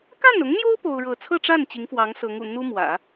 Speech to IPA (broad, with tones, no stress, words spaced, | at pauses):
ka˥˩nʊ˧˥ŋn̪jo˥ʊ̯ po˥ʊ̯ɻɤ˥˧ t͡sʰɤ˥˧ʈ͡ʂa˥˩n t͡ɕi˧˥ŋfwɑ˧˥ŋsɤ˧˥ŋṵ˨˩ n̪u˥mwä̰˨˩˦